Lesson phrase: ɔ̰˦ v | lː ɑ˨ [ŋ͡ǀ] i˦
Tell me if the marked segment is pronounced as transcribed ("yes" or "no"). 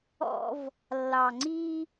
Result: yes